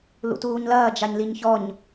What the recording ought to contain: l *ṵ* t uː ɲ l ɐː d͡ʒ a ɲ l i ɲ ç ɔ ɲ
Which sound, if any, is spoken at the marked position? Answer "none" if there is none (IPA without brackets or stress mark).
ṵ